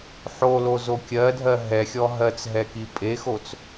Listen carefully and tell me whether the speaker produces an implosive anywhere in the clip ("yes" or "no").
no